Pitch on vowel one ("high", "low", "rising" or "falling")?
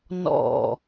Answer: falling